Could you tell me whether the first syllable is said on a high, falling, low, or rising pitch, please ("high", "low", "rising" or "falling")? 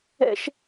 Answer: high